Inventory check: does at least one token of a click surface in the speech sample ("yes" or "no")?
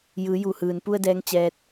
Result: no